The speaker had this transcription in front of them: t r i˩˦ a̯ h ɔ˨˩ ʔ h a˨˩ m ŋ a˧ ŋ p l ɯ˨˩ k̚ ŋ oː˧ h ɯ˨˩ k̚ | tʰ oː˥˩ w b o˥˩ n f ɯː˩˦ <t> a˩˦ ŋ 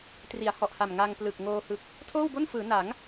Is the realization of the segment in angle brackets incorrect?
yes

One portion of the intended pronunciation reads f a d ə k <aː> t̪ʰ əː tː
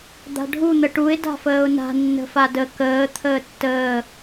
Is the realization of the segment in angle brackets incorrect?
yes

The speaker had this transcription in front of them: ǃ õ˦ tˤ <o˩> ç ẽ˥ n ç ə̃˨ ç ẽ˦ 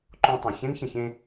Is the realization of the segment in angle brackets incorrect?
yes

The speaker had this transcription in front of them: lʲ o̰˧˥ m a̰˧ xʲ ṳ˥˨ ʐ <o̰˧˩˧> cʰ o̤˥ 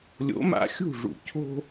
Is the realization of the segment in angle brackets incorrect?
yes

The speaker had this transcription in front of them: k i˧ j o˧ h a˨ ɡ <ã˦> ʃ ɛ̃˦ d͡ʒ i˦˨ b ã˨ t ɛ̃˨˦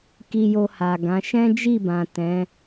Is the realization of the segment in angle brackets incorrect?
yes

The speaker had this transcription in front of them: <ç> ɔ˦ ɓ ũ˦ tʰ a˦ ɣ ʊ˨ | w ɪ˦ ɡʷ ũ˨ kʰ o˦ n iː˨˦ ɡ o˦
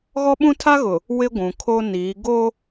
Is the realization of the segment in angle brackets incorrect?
yes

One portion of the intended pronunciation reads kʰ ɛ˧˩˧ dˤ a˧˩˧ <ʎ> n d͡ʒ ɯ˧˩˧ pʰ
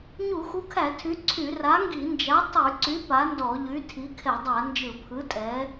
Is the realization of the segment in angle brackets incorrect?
yes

